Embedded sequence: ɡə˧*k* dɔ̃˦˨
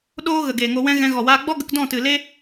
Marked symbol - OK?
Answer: yes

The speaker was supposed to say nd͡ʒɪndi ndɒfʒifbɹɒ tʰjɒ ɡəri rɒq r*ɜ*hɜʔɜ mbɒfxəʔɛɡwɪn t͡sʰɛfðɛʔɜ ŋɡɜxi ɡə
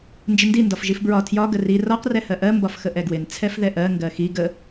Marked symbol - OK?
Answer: no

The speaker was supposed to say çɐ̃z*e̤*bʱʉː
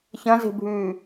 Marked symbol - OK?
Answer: yes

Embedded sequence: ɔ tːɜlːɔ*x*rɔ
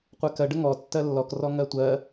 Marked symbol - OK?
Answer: no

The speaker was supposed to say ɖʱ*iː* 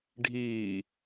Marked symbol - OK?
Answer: yes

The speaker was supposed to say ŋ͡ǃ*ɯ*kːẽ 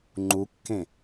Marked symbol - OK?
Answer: no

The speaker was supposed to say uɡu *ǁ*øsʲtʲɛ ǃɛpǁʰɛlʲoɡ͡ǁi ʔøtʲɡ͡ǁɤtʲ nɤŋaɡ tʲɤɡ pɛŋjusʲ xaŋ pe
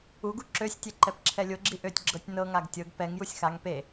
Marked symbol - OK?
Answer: yes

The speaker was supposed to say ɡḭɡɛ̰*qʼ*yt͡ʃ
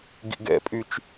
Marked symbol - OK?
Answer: no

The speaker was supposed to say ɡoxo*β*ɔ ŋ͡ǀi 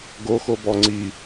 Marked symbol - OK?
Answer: no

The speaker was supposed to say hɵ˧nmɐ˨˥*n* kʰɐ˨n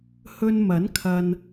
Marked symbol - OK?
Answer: yes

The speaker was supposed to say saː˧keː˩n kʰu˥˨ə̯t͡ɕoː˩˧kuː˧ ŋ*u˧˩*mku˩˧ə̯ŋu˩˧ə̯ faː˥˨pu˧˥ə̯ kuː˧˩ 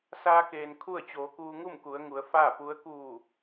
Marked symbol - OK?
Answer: no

